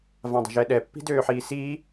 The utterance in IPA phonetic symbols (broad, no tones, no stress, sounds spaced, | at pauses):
v ã dˤ ə̤ ʒ ɛ ɗ ɛ pː i̤ d øː ħ iː s iː